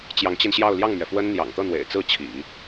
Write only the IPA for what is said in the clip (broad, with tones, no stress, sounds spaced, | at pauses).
t͡ɕ j ɑ˧˥ ŋ t͡ɕ i˧ n ɕ j ɑ˥˧ ʊ̯ l j ɑ˥˩ ŋ m ɥ ɛ˩ f w ə˥ n n̪ j ɑ̰˨˩ ŋ t̪ ɤ˥˩ n̪ w ḛ˨˩ ɪ̯ t͡s ɹ̩˥˩ t͡ɕʰ ḭ˨˩˦